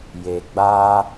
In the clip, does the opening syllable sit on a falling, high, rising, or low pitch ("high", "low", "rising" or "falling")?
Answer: low